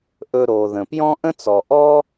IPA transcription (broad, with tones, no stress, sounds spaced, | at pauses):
ʔ ɵ˧ ɾ o˩ ð ə̃˩ p j ɔ̃˥ ʔ ə̃˥ t͡s ɔ˩ ʔ ɔ˥